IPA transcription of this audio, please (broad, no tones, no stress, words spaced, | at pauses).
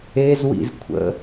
ezwḭzkʷʰə̰